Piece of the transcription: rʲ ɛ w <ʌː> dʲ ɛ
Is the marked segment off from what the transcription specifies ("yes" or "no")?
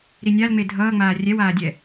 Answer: yes